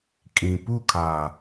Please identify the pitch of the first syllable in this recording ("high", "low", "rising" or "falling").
low